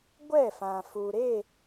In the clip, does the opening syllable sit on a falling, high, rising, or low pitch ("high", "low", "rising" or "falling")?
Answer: falling